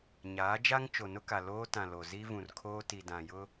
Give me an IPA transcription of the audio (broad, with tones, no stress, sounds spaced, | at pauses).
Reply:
ɲ aː˨˦ d͡ʒ a˦ ŋ t͡ʃ o˨ n ʊ˦ k a˨ l oː˦ t ã˨ l o˨ z i˦ v ũ˨ r kʰ oː˦ t i˨ d ã˨ j ʊ˦